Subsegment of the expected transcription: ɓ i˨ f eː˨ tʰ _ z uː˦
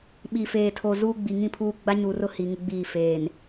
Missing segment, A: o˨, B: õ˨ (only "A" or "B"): A